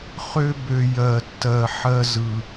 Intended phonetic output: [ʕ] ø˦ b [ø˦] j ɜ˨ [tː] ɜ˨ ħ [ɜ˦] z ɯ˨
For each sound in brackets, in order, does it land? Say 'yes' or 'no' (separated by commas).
no, no, yes, yes